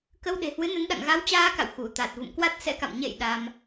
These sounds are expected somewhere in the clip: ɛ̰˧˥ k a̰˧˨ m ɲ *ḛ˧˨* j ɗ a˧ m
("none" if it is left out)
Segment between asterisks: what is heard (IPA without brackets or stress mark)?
ḛ˧˨